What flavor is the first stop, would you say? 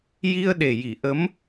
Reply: implosive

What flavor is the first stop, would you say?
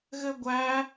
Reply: plain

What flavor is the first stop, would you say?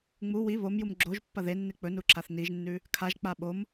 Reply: click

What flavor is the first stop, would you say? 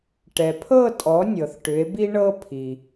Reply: plain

